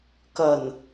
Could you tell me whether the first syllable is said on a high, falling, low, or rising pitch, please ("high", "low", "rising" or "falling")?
low